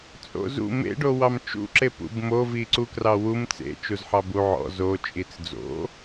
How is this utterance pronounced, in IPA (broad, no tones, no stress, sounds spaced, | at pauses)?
t͡sʼ o̰ z ṵ m ḛ ɖ o w ɑ m t͡ʃ ṵ ǁ e p ṵ b m o v i ǀ u k r ɑ w u m t͡s ḛ t͡ʃ u z ħ ɑ b u ʕ ɔ̰ z o t͡ʃʼ i t͡s d͡z o̰